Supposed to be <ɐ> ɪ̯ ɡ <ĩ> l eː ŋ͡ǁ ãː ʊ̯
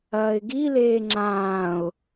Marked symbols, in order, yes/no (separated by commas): no, no